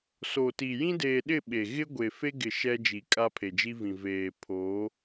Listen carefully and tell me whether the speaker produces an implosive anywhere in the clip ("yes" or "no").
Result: yes